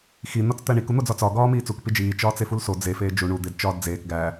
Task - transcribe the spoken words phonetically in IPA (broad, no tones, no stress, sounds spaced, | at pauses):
x i n̪ ɒ t͡s t̪ æ ɳ i k u n̪ o d͡z ɒ t͡s ɒ ɡ ɒː m iː t͡s u k p i d͡ʒ iː t͡ʃ ɒː t͡s e f u l s o d͡z e f eː d͡ʒ u ɳ u d̪ e d t͡ʃ ɒː d d͡z eː k ɡ æ